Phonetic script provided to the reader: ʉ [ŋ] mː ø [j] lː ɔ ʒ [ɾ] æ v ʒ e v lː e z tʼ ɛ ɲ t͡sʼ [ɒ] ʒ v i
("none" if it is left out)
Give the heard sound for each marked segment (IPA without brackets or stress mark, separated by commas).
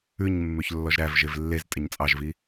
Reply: ɲ, ç, ɾ, ɑ